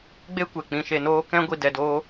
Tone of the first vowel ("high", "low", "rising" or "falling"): high